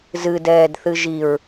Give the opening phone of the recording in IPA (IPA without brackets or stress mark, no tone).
z